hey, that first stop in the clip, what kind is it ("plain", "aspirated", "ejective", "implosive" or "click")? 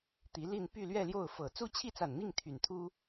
plain